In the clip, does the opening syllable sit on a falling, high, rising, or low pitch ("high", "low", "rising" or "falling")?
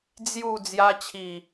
falling